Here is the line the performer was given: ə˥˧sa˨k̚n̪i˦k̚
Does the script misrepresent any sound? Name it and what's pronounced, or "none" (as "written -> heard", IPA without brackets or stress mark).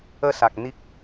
none